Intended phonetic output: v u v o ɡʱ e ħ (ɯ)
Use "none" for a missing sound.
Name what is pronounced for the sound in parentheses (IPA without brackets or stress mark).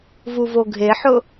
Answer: ʊ